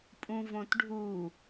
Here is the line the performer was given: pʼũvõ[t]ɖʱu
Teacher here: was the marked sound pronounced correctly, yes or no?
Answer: yes